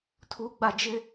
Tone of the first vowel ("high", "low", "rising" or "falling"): high